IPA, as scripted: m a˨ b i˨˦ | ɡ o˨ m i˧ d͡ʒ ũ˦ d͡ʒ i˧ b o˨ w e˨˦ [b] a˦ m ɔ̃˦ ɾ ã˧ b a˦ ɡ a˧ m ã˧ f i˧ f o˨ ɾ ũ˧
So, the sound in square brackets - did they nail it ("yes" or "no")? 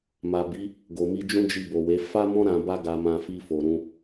no